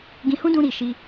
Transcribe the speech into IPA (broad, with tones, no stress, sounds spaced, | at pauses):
ɡ ĩ˧ h ũ˦ d ũ˧ ɾ i˨ ʃ i˧